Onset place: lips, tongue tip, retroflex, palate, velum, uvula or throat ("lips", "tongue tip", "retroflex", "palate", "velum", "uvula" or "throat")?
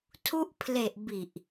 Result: tongue tip